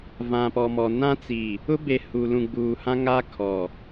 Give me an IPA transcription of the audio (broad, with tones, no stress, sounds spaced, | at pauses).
v ã˨ p ɔ˨ m ɔ˨ n ã˦ t͡s i˨ | ʊ˦ b e˨ h u˨ l ũ˨ ɡ͡b uː˨ h ã˦ ŋ a˦ kʰ ɔ˨